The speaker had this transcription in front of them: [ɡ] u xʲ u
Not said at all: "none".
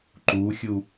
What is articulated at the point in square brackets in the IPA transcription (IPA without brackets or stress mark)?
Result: ǃ